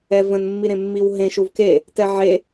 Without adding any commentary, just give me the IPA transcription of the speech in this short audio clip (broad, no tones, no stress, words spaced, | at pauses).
ɛvə̃nmːiɾẽ mːiwɦẽ ʃuvke | tɛʕe